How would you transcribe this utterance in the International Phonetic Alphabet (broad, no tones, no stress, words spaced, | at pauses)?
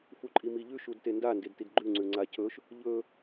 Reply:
fuǃʼimiʎʉ ʃudtenda ndedtidɡ͡ǃʉ ŋ͡ǀʉŋ͡ǀacʰɵʃ | ʎɵ